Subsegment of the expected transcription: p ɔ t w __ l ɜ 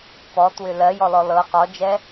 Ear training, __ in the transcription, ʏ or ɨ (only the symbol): ʏ